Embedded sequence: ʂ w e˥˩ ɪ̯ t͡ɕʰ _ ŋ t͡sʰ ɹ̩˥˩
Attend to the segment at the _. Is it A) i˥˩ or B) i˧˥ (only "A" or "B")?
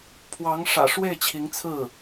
B